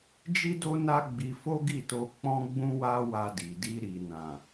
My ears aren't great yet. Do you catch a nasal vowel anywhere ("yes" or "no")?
yes